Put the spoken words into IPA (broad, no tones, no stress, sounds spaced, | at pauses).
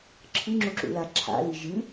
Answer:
ǁʰ ɨ ŋ͡ǁ u ǁ ṵ l a ǁʰ a̰ l i ʒ ɨ